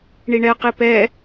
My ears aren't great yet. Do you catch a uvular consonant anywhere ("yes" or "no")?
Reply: yes